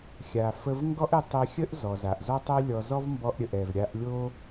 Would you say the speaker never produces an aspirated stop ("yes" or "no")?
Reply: yes